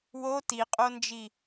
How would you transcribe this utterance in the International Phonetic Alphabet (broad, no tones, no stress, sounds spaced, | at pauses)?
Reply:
w o t i qʼ o n d͡ʒ i